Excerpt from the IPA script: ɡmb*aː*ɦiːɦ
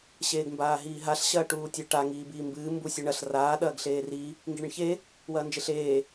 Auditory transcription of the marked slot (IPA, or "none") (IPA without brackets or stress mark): aː